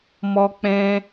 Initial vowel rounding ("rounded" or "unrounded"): rounded